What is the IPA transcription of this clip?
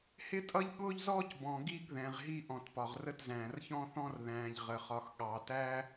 h ɪ˥ tʼ ʌ˥ ʎ ɠ ʊː˥ ʎ z ɔː˥ c b ɔ̃˨ ɡ i˦ ɡ ð ɛ̃˨ ʁ ɦ i˦ ʔ ɔ̃˩ t p ɒ˩ ʁ r ə˦ t z æ̃ː˩ r ç ɔ̃˦ θ ɔ̃˦ r ð æ̃ː˨ ʎ ʁ ə˩ χ ɒ˨ x ɠ ɑ˨ t æ˥

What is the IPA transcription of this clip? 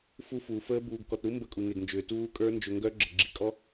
f u˦˥ f uː˧ f əː˦˥ b uː˧ ɡ k ɔ˧ t ɾ u˦˥ m b ə˦˥ kʼ u˧ ŋ e˧ ɡ n d͡ʒ ʏː˧ t uː˦˥ kʼ ə˞˦˥ n d͡ʒ ʏ˧ ŋ ɡ œ˦˥ ɡ͡ǁ ə˧ ɡ͡ǁ i˧ kʼ ɔ˦˥

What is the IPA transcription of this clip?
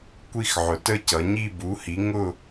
kʷ i˥˧ x ʕ ʊ˩˧ t ə˥˧ c ʌ˩˧ ɲ i˥˧ b u˨˥ h i˨˥ ŋ ʊ˥˧

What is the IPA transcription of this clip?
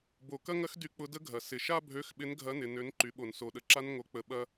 b o˩ k ɐ˥ ŋ ɐ˥ x d y˧ k͡p ʊ˨˥ d ə˥ ɡʱ ɐ˩ s ɪ˩ ʃ a˥ bʱ ø˨˥ x ɓ ɪ˨˥ n ɡʱ ɐ˨˥ n ɪ˩ n ø˨˥ n ǃ y˩˧ ɓ o˩ n s o˩ ɗ ə˩˧ ǁ a˥ n ŋ o˧ k͡p ə˧ ɓ ɐ˥

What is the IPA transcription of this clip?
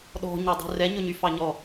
ɗ ɔ̤ ɲ ø dˤ ṳ r ɛ ɲ ɵ ɲ y f ɑ ɲ ɔ

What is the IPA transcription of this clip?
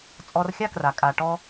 t͡sʼ ɔ˧ r xʲ a˦ k r a˨ kʼ a˨ ʈ ɔ˧

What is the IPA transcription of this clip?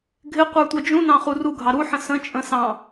ɡʱ ɪ qʷ ə˞ tʷ ʌ d͡ʒ ũ n ɑ̃ χ u r u ɡʱ ɑ ɾ u ħ ə̃ s ə̃ t͡ʃʼ ə̃ s ɑ̃

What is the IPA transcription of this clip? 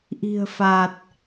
ʔ i̤˨˩ ə̯ f a˨˩ t̚

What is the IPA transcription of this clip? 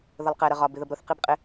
ð ə lˠ q ɛ ɾ ə ʁ ɒ b ɪ ð ə b ɾ ʊ θ q i b qʼ ɪ

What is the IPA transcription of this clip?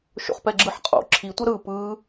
ʃ o̰ χ p ɛ ɡ͡ǁ ɯ ħ qʼ o̰ ǁʰ i tʷ ʌ ɾ ɯ p ɯ

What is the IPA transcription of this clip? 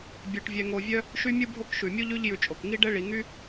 bʲ œ˨ ʈ vʲ ɛ˨ ŋ o˨ vʲ œ˦ | ʃ y˦ mʲ u˦ bʱ o˦ k ʃ ʉ˩ mʲ u˥ ʎ ʉ˦ ʎ j ʉ˨ t͡ʃʼ o˩ k ŋ i˥ ɖ ɛ˥ ɭ i˨ ŋ y˥

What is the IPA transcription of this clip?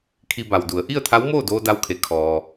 kʰ i˧ b a˩ w d u˩˧ ə̯ ʔ i˥˨ ə̯ t̪ʰ a˧˥ w m oː˥˨ d oː˧ d a˧ w kʰ e˩˧ kʰ ɔː˩

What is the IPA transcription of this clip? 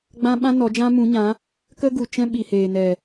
ɡ͡b ã˦ ɓ ã˦ n ɔ˨˦ d͡ʒ ã˦ m ũ˨˦ ɲ ã˨˦ | k ə˦ ɡ u˨ t͡ʃ ɛ̃˦ ɓ i˨ h eː˨ n ɛ˨

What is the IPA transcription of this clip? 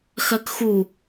x ɜ k x u

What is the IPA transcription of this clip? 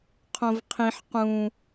qʰ õ v qʰ ĩ ħ q ũ

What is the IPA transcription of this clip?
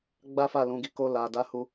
ɡ͡b a˦ f a˦˨ l ũ˨˦ ɡ i˧ k o˧ l a˨ d a˨˦ h u˦

